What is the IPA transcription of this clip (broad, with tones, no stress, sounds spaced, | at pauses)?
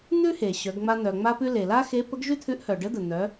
n̪ ʉ˥ h e˩ ɕ œ˩˧ ɡ ŋ͡m a˧ n̪ œ˩ ŋ͡m a˧ p ʉ˧ l e˩ l a˥ x e˧˥ p ə˧˥ ɡ ʒ ʉ˥ t̪ʰ ʉ˧˥ ʔ h œ˩ ɖ ə˧˥ d̪ ə˩ n̪ œ˩˧